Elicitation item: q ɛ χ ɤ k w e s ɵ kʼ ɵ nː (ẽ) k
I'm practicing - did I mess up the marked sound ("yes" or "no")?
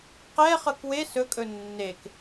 yes